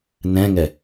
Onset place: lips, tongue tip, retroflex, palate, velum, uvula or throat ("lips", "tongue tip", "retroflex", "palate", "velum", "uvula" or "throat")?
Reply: tongue tip